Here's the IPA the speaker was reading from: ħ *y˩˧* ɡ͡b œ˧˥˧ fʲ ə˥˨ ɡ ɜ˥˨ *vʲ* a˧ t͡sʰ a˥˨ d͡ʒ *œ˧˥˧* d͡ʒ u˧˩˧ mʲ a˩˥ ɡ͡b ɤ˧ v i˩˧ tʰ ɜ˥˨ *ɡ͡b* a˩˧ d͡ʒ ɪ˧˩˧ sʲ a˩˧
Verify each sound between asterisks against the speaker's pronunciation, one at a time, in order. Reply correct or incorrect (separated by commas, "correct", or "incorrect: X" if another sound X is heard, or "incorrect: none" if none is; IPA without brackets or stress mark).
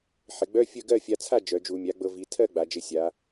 incorrect: ɪ˩˧, incorrect: fʲ, incorrect: œ˩˧, correct